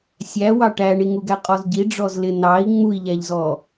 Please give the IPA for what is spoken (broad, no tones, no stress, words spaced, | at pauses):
sʲæwɑ ʈæɳiŋuɡæ qʼɔzɟi ɖ͡ʐɔzlɪ nɑi̯ ŋ͡mui̯ʎæʎzɔ